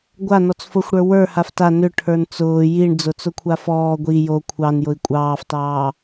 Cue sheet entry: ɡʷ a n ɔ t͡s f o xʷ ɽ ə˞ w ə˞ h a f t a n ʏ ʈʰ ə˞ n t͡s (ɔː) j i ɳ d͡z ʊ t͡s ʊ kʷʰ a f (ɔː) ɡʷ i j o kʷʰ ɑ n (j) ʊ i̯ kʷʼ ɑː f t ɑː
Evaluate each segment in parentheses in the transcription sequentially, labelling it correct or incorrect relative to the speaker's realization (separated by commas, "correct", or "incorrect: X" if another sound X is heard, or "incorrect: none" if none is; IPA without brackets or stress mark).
incorrect: ʊː, correct, correct